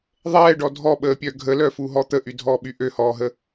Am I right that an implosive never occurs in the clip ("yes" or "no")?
no